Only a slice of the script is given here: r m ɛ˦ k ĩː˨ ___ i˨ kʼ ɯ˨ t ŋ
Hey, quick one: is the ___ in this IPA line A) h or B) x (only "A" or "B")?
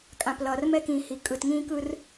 A